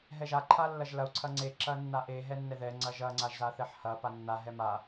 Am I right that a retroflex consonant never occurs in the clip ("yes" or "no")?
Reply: yes